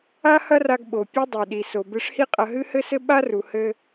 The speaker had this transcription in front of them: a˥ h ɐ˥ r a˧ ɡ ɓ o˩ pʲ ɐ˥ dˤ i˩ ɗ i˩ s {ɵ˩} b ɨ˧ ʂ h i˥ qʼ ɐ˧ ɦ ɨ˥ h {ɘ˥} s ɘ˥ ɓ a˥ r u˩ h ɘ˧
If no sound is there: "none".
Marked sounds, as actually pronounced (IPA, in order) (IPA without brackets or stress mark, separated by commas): o˩, ɘ˥